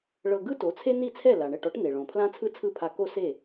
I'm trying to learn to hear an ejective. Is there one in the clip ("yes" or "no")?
no